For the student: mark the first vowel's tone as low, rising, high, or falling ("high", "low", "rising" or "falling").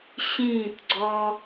falling